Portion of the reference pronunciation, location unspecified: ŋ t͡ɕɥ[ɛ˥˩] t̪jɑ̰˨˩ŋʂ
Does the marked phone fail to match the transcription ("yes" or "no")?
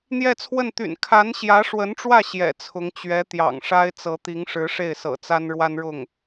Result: yes